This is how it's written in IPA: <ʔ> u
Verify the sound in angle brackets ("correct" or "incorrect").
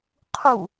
incorrect